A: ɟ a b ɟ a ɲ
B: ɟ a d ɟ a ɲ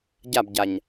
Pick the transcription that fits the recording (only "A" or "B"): A